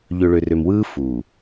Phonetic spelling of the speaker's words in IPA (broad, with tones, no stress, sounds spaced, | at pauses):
ʎ ø˨ ɭ ø˨ r ø˨ m w ɯː˦ f uː˨